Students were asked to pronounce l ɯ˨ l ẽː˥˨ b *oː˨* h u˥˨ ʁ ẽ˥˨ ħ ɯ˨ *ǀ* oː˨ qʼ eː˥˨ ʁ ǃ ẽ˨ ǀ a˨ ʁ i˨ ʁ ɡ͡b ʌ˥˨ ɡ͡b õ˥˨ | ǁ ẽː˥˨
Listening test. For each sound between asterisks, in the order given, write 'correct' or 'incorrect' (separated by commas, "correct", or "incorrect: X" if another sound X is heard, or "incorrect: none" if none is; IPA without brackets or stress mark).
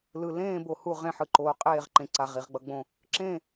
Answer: incorrect: o˨, incorrect: ǃ